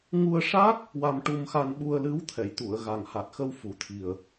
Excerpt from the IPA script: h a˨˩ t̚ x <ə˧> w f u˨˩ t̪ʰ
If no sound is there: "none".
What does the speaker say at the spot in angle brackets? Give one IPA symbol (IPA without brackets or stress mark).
ə˧